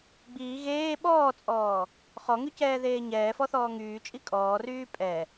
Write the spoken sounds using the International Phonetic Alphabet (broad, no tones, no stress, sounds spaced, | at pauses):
ɡ͡b iː ɣ eː ɓ ɔː t͡sʼ ɔː | χ ɔ ŋ y c ɛː ð eː ɲ ɛː f ɔ θ ɔː ŋ yː t͡ʃʼ i kʼ ɔː r yː pʼ ɛ